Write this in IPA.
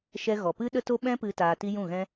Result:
ʃɛ˧ ɣɔ˨pɨ˦ ɗə˦to˦ ɓɛ̃˦pɨ˧ taː˧ti˦ jũ˦˨ɣɛ̃˦

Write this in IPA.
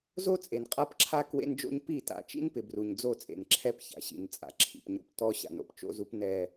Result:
zo˦t͡sʼe˨nqʼa˦pǁʰa˦ kwḛ˦nd͡ʒo̰˦ɲ pi˦˨ta̰˨ t͡ʃḭ˦npɪ˨bru˨ɲ d͡zo˦˨t͡sʼḛ˨nǁʰɛ˦p ça̰˨ɕḭ˨n t͡sʼa̰˨ǁʰḭ˨pɲo̰˦p tɔ˦ ɕa̰˨no̰˦pt͡ʃo̰˦zu˦p nɛ˦

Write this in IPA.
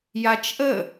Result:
jat͡ʃʔə

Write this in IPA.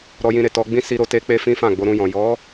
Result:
ɾɔ˧jĩ˧ɾe˨ tɔ˧ɡ͡bĩ˦ si˧ɾo˧ te˦ k͡pe˦fĩ˦fã˦˨ ɡ͡bo˧ɾũ˧jɔ̃˨ jɔ˨˦

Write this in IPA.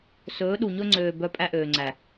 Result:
sɵː˨˦ɗu˨ ɲɵ˧ŋ͡ǀøː˨ bœ˧pʼæ˧ʔøː˨ŋ͡ǀæ˨

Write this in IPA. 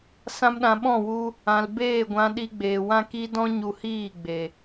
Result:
sã˦mɗã˧ ɓɔ̃˦˨wu˧ | ã˨l beː˦˨ɡʷã˧ ɗi˧ɡ͡beː˨wã˦ ki˦ dɔ̃˦ ɲu˧hiː˦˨ ɡ͡be˨

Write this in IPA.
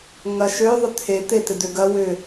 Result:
ŋɐʃø ðˤʏt̪ʰe t̪et̪ɪd̪øɡɐ wʏ

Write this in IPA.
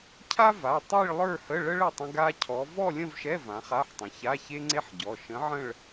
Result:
cʰa˥va˩˧˩ tˤi˥˧ɭ lˠə˞˥˧hə˧˥˧ɭə˥ɭ ə˩˧˩tˤə̃˥ɡa˥cʰɔ˧˥ vɔ˥˧lʲə̃˥˧v ʃɛ˧˥˧vã˩˧ χa˧˥˧ħtˤə̃˩˧ ça˧˥˧çe˥ŋ͡ǀe˥ħɟɔ˩˧˩ ʃə̃˧˥ʕə̃˥˧ɭ

